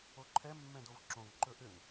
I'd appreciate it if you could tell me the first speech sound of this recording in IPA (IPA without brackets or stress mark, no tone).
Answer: o